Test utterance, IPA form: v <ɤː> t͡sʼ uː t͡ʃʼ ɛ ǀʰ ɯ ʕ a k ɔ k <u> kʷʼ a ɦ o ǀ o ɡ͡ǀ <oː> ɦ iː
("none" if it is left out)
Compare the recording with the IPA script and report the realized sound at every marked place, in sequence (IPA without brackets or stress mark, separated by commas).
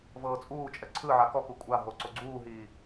ɤː, u, uː